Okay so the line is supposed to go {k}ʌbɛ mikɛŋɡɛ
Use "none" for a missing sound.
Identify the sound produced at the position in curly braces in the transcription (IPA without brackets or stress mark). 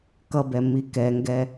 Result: k